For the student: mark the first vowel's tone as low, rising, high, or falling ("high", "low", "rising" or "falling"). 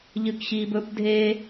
low